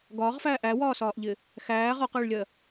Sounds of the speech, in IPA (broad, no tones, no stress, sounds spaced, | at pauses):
ɡ ɒː ʁ f æː ʔ æ w ɒː s ɒː ʔ ʎ ɪ | x æː ʁ ɒ q ɜ ɭ lʲ ɜ